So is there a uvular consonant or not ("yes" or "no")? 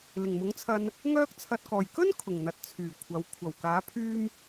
no